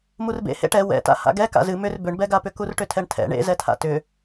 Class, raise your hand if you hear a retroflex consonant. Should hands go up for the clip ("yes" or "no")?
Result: yes